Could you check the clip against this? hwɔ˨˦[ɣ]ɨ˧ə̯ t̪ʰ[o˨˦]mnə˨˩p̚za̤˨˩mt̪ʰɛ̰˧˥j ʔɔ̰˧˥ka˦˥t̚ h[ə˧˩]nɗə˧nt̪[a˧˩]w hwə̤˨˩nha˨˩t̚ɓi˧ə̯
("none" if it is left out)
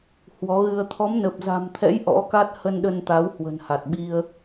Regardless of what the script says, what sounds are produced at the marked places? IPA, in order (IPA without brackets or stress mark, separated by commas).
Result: ɣ, ɔ˨˦, ə˧, a˨˦